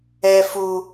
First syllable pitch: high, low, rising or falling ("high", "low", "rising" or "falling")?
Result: high